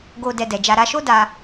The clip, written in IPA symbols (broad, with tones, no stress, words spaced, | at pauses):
ɡo˧ dɛ˧dɛ˨d͡ʒa˧ɾa˦ ʃo˦ da˧